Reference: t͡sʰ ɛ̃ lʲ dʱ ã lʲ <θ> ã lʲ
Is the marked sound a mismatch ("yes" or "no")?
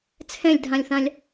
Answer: no